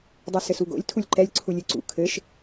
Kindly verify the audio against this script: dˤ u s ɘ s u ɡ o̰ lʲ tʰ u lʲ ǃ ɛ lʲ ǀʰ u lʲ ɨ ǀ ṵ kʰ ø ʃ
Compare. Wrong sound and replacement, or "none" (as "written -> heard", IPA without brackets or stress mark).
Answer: ø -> ɘ